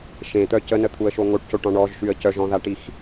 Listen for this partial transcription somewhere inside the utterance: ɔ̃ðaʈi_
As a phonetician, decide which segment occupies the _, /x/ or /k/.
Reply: x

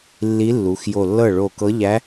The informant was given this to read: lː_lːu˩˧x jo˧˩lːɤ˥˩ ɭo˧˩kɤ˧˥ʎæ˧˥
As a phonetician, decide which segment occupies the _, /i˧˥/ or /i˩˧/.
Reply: i˧˥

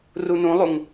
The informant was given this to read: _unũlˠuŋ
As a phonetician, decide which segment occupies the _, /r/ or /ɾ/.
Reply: r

